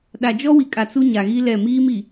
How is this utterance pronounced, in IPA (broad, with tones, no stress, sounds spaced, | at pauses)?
ɗ a˨ d͡ʒ ɔ˦ w i˨ kʼ a˨ t͡s u˦ ɲ a˨ ɣ i˦ l ɛ˦˨ m iː˦ m i˨